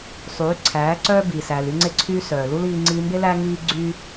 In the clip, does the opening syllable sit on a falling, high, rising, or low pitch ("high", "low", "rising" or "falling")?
rising